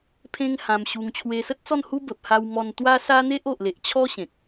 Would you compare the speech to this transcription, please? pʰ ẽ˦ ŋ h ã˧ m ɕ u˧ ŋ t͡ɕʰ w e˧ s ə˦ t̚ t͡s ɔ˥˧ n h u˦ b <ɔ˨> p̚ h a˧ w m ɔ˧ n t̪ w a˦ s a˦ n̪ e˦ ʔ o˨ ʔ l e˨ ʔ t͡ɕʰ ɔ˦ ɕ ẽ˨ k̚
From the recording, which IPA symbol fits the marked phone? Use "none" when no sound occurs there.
ə˨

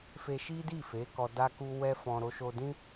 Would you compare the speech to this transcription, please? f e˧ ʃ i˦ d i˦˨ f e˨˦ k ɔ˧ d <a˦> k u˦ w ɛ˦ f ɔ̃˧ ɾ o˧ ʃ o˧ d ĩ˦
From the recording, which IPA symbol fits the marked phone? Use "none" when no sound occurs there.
a˦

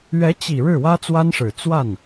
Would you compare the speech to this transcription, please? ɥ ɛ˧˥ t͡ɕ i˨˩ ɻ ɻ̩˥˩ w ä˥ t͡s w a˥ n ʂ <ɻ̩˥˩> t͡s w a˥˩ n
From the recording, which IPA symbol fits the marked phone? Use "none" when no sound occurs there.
ɻ̩˨˩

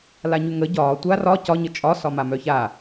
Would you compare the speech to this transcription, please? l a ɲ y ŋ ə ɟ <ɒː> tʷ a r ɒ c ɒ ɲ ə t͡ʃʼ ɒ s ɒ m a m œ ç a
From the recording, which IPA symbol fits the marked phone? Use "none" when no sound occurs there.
ɒː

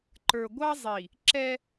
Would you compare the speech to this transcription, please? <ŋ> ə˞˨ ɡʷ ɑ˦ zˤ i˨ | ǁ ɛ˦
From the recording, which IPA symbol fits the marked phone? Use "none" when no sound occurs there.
ǃ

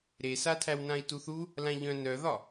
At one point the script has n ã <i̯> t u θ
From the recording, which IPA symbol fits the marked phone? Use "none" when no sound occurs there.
i̯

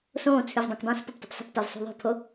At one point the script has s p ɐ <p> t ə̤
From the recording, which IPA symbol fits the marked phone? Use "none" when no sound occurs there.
p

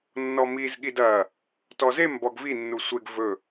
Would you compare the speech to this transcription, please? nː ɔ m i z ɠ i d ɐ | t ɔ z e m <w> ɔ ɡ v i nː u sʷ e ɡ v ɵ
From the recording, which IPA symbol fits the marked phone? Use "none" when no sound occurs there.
b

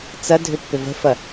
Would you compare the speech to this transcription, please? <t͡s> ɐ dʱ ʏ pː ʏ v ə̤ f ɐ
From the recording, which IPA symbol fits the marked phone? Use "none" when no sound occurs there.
t͡s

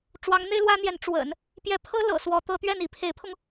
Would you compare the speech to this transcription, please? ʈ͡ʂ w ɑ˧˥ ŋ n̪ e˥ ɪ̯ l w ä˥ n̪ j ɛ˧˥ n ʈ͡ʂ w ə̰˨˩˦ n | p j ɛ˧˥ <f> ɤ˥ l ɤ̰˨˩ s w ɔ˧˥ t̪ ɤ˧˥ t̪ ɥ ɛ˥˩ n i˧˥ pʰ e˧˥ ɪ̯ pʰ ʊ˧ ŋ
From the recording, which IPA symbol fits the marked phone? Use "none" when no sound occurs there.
pʰ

